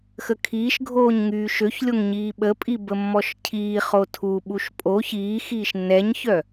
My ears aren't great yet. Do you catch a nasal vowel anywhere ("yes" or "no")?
no